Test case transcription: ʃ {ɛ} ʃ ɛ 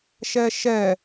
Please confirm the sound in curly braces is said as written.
yes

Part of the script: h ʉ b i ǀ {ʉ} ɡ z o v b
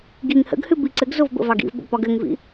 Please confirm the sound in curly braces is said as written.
no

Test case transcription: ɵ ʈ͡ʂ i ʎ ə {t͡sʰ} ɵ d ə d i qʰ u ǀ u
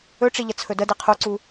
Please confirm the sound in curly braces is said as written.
yes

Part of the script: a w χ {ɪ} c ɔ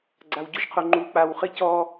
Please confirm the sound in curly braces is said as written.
yes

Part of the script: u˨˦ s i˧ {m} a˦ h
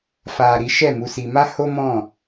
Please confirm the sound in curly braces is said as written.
yes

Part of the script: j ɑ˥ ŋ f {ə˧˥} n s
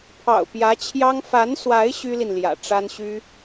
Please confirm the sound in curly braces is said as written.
no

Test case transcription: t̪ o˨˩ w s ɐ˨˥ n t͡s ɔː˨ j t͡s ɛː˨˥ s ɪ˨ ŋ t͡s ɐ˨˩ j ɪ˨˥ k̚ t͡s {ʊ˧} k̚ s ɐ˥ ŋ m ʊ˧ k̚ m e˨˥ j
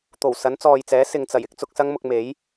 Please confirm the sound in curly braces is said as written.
yes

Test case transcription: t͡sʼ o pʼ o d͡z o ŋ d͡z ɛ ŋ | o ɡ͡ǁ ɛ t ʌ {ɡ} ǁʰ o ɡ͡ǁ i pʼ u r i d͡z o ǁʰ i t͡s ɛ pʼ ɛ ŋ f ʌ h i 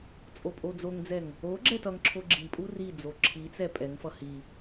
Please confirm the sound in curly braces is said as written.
no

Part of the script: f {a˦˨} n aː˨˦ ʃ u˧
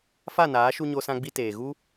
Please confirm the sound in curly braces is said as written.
yes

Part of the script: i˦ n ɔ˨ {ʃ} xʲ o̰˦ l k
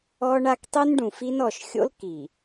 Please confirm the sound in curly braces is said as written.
yes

